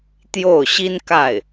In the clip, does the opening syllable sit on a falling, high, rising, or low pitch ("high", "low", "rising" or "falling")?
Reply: falling